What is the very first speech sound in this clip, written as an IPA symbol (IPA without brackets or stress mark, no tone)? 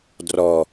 d